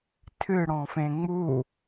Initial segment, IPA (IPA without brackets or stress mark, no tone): tʰ